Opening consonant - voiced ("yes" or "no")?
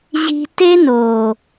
yes